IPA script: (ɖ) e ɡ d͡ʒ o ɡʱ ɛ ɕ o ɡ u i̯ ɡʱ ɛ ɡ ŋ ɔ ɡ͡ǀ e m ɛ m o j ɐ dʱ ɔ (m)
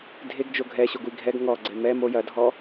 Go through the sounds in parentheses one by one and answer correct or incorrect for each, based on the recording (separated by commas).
incorrect, incorrect